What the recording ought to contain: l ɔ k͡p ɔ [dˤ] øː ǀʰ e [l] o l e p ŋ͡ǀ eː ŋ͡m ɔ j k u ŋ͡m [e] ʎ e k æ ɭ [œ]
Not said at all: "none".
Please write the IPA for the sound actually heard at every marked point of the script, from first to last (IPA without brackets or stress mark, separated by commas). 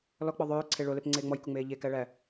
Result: ðˤ, ɭ, eː, æ